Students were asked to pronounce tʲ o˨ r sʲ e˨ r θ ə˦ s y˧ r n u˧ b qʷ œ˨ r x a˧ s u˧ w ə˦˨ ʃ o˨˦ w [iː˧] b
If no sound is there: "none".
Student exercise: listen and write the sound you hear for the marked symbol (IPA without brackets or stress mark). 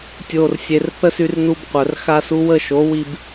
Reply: i˧